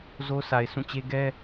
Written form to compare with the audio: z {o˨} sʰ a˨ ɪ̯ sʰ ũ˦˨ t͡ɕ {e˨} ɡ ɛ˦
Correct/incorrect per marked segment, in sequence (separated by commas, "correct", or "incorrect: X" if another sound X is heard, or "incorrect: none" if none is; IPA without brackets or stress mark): incorrect: o˦, incorrect: e˦